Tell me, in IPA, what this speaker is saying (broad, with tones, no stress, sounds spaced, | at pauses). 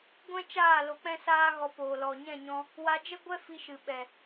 ɡʷ ɛ̃˦ t͡ʃ aː˦˨ l o˧ k͡p ɛ̃˦ s aː˦ ɣ ɔ˧ p oː˨ l ɔ˨ ɲ ɛ̃˦˨ ɲ ɔ̃˧ | w a˧ d͡ʒ ə˦ ɡʷ ɛ˦ f i˧ ʃ ɨ˨ ɓ ɛ˨